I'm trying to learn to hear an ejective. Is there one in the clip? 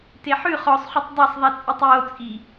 yes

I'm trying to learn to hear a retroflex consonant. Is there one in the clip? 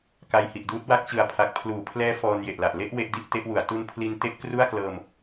no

